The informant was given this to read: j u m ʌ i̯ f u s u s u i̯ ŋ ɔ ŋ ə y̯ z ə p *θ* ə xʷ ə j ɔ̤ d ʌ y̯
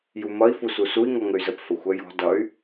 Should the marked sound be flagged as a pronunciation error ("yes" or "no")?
yes